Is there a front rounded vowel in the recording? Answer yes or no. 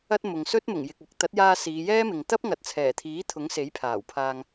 no